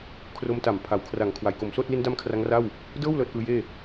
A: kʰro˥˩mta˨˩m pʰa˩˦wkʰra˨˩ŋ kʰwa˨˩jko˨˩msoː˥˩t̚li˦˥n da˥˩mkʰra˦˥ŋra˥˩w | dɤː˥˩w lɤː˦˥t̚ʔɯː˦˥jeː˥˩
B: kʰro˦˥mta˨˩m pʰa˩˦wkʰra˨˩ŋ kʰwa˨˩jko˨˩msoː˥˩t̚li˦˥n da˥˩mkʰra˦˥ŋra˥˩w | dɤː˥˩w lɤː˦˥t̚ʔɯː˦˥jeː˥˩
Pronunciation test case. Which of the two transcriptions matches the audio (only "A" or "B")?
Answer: B